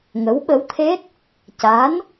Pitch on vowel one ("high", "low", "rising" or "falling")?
rising